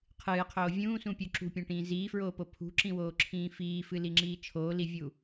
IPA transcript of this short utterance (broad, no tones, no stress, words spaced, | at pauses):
qʰɨːqʰoː vʲũːsũpʲu ǁṳpʲõʈĩː ziːfɹoːpo pʰṳǁĩwoːǁʰĩː fiːfɨliŋ͡ǁiː t͡ʃʰoːlivʲu